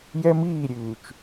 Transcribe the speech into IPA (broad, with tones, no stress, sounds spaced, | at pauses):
j ɛ˦ m iː˦˨ ɾʲ ʉː˨ t͡ʃ